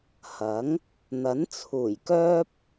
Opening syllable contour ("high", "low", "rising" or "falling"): rising